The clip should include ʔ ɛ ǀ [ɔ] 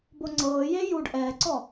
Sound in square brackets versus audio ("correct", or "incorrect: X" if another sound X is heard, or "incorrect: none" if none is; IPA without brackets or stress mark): correct